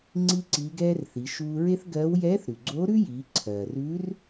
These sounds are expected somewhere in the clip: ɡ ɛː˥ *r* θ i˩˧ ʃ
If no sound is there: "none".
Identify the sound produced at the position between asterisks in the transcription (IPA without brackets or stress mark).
r